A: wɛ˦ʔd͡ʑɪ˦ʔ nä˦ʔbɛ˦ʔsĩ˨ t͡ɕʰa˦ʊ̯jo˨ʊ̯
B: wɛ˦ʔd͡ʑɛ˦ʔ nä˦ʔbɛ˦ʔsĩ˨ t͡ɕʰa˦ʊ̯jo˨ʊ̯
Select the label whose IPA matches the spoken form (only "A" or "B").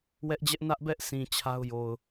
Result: B